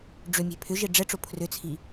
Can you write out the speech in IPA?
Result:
ɖ͡ʐ ʏ mʲ e̤ pʰ ʏ ʒ e ɖ͡ʐ ɛ ʈ͡ʂ o pʰ r ʏ t͡sʰ i

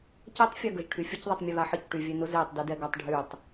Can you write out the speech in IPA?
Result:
c ɛ tˤ fʲ a ɡ ə ʒ ʈʰ y fʲ ə c ðˤ e tˤ mʲ e β a ħ ə c ʈ y vʲ e n ʊ z e tˤ d y d ɛ ɡ a tˤ ɖʱ y tˤ

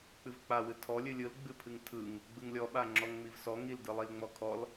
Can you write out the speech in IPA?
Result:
k͡p ɨ v k͡p a w ɨ tʰ ɔ lʲ ɨ lʲ ɯ l ɡ͡b ɨ pʰ ɨ ŋ tʰ ɯ ŋ | ɡ͡b ɯ ŋ lʲ ɔ ɓ a ŋ͡ǁ ɔ ŋ ŋ͡m i v s ɔ ŋ i l d ɯ lˠ i l ŋ͡m ɔ kʰ ɔ l

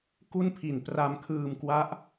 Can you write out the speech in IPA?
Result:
k u˥˩ n pʰ i˨˩ n p r a˧ m kʰ ɯː˧ m k w a˦˥ ʔ

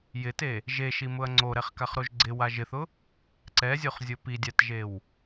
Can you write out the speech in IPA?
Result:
j ɪ t e | ʒ e ʃ i m ʊ ɐ̯ ŋ͡ǀ o ɾ ɛ χ k a χ ɾ o ʒ ɡ͡ǀ ɪ w a ʒ ɪ θ ʊ | ǀ ɛ zʲ o χ zʲ o p i dʲ a t ʒ e w

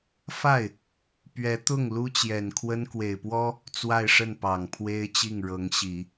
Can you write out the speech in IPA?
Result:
f a˥˩ ɪ̯ | p ɥ ɛ˧˥ t̪ ʊ˥˩ ŋ l u˥ t͡ɕ j ɛ˨˩ n kʰ w ə˥ n k w e˨˩ ɪ̯ p w ɔ˥ | t͡s w a˥˧ ɪ̯ ʂ ə˥˩ n p ɑ˨˩ ŋ pʰ w e˥ ɪ̯ t͡ɕ i˥˩ ŋ ɻ ɤ˧˥ ŋ ɕ i˨˩˦

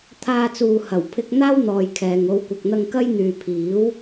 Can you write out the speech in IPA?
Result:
t̪ʰ aː˧ t͡s uː˨ h ɐ˨˩ w pʰ ɪ˧ k̚ n̪ aː˥ w n̪ ɔː˧ j kʰ ɛː˨ ŋ o˨˧ w kʷ ɐ˨ k̚ n̪ ɐ˧ ŋ k ɐ˥ j n̪ yː˨ pʰ iː˨˥ w

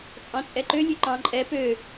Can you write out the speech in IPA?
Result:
t͡sʼ ɑ̃ t͡sʼ ɛ ǃ ø lʲ ø ǃ ɑ̃ ǃʼ ɛ p ø

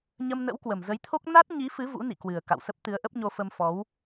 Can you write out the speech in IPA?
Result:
ɲ ə˧ m n ə̰˧˥ w k w ə˨˩ m z ə˨˦ j t̪ʰ o˦˥ k̚ n a˦˥ t̚ ɲ i˨˦ f ɨ˨˦ v ṵ˧˥ n ḭ˧˨ k w ɨ˨˩ ə̯ k a̰˧˨ w s ə˦˥ p̚ t̪ ɨ˨˦ ə̯ ʔ ə˦˥ p̚ ɲ o˧ f ə˧ m f ɔ˨˦ w

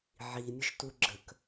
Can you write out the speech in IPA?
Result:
ʕ i mʲ ə ʃ t u ɡ͡ǁ ə k

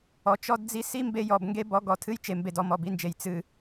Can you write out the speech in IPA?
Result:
ɔ˨ t͡ʃ ɔ˦ d d͡z i˦ s i˦ m b e˦ j ɔ˨ b ŋ ɡ e˦ b ɔ˨˦ ɡ ɔ˨ tʰ ɨ˦ j t͡ʃ e˨ m b e˨ d ɔ˦ m ɔ˨ b i˦ n d͡ʒ e˨ j t͡s ɨ˨

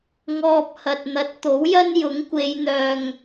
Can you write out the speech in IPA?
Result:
ŋ ɔː˧ p̚ h ɐ˨ t̚ n̪ ɐ˨˥ t̚ t̪ o˨˥ w j ɐ˥ n j ʊ˨˥ ŋ kʷ e˨˧ j n̪ œː˨ ŋ

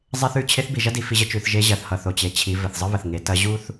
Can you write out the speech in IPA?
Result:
zˤ e˥ θ ʉ˧ t͡ɕʰ e˧˥ θ b i˩ ʒ ɐ˥ d i˩˧ f i˧ ʑ ə˥ t͡ʃ ʉ˩˧ θ ʒ e˧˥ ʑ ɐ˩˧ θ h ʌ˩ θ o˩ t͡ɕ e˩˧ t͡ɕʰ i˩˧ v ɘ˩ θ zˤ ə˥ β ə˩ θ ŋ e˩˧ t ɐ˧˥ ʑ u˥ θ

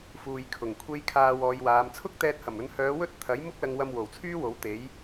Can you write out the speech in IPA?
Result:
f uː˨ j kʰ ʊ˨˩ ŋ kʷʰ e˥ j kʰ aː˧ w ɔː˨˧ j w aː˨˧ m t͡sʰ ʊ˥ k̚ t̪ ɛː˧ t̚ h ɐ˨˩ m ɵ˨˧ n h œː˨˧ w ɵ˥ t̚ t̪ʰ ɐ˨˥ j m ʊ˥ k̚ l ɐ˧ ŋ w ɐ˧ m w o˨˩ w t͡sʰ yː˥ w o˨˥ w t̪ e˨˥ j

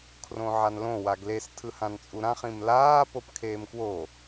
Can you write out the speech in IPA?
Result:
kʰ r õ ʕ a n l õ w a ɡ l e s tʰ ɯ h ã n t͡sʼ u ɾ ã χ ĩ m l aː p o p kʰ eː m k w o

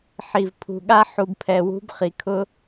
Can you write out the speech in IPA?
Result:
ħ i˩ v pʰ ṳ˩ ɠ a˦ ħ u˨ b pʰ ɛ˨ w ṳ˥ b χ i˩ kʰ ʊ˥

